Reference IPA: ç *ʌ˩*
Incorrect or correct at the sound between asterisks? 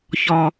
incorrect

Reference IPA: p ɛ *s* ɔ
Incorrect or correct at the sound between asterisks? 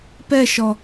incorrect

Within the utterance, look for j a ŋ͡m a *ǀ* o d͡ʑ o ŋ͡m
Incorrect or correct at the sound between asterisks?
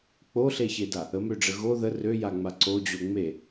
correct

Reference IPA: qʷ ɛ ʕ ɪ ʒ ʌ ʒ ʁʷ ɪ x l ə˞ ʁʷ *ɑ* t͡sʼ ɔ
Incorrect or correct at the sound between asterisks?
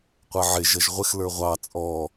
correct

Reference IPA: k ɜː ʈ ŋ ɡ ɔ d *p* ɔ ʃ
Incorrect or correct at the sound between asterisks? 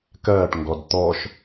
incorrect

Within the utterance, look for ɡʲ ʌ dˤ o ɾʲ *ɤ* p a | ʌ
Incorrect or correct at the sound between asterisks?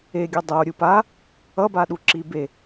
incorrect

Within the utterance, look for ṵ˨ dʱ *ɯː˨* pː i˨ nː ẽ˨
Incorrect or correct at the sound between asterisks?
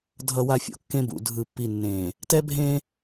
incorrect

